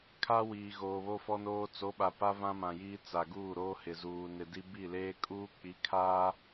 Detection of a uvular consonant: absent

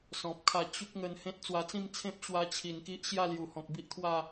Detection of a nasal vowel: present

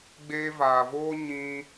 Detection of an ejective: absent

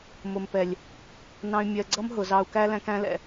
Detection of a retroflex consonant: absent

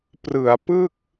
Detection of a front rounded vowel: absent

